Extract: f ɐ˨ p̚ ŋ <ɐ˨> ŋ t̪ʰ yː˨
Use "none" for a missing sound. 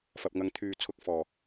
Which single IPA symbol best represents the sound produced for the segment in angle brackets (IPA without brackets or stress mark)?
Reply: ɐ˨˥